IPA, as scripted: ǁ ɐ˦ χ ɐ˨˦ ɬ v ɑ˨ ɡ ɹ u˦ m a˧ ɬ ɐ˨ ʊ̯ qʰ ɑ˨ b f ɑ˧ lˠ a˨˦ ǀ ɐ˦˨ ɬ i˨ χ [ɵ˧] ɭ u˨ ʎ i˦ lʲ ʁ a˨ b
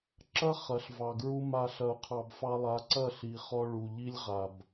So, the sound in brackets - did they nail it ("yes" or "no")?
no